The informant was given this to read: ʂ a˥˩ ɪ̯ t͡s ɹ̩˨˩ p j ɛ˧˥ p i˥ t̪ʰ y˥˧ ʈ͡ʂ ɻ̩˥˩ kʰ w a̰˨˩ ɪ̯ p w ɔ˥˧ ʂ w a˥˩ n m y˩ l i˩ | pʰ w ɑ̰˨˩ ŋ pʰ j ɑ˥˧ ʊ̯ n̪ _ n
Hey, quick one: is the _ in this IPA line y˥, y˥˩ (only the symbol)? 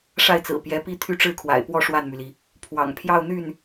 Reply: y˥˩